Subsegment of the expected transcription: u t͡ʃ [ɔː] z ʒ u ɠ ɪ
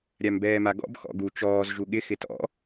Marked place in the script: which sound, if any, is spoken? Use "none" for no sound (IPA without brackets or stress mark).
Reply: ɔː